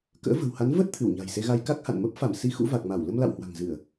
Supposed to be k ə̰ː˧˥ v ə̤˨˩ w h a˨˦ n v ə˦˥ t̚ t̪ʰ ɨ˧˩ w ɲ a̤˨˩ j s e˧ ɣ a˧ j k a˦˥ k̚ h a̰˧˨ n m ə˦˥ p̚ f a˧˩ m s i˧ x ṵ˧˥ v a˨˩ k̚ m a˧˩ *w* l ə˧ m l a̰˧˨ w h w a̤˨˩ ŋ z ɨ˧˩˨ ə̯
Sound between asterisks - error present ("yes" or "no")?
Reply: no